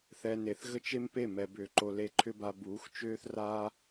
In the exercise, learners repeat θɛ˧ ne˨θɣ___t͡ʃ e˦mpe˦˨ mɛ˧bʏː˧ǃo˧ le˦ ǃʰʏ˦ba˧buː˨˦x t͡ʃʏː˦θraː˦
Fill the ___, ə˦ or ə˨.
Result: ə˦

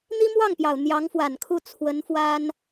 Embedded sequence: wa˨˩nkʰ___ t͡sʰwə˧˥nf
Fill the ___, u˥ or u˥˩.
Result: u˥˩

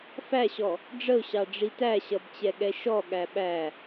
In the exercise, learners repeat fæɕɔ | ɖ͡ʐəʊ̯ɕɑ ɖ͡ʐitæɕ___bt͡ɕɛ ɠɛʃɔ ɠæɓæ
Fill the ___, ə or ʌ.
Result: ʌ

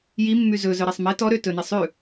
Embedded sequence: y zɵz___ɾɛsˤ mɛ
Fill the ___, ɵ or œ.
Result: œ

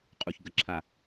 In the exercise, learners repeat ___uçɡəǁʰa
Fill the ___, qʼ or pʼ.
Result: qʼ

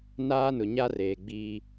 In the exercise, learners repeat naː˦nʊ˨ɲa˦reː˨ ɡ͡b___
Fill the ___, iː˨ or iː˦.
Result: iː˦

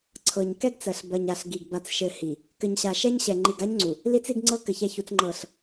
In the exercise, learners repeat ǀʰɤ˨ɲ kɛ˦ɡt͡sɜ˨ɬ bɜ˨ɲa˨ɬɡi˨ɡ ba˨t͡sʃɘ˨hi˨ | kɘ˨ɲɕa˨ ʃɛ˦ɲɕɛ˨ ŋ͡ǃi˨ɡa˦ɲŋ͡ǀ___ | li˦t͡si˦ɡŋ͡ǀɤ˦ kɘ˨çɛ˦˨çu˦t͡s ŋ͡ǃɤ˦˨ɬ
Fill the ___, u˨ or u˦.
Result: u˨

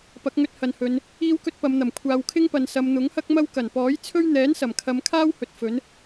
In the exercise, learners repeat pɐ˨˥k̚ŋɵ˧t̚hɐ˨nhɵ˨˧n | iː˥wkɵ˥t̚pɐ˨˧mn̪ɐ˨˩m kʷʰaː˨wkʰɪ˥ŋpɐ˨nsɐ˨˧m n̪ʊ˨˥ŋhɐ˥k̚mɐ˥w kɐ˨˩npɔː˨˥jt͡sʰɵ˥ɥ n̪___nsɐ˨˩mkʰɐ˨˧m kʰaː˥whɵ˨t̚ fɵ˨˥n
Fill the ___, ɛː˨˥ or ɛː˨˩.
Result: ɛː˨˥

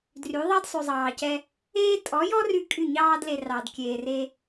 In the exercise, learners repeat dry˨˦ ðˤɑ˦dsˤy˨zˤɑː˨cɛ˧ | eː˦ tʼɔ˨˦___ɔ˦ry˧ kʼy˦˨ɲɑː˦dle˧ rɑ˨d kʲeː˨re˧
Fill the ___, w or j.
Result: j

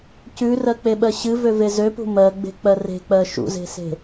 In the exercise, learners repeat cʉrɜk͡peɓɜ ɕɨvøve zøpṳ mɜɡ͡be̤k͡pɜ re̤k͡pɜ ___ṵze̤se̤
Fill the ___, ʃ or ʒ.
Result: ʃ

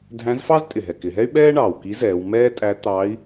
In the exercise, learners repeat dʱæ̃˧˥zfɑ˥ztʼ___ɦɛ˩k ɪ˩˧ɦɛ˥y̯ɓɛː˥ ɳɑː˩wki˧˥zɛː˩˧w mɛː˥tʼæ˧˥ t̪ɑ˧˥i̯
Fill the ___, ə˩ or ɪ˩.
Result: ɪ˩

